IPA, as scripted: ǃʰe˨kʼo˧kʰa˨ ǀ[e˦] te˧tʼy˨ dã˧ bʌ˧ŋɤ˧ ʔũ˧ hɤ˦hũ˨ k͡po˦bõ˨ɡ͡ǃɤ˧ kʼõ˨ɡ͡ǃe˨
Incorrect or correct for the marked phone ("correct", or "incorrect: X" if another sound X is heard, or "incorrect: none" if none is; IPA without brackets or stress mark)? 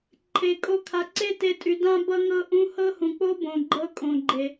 correct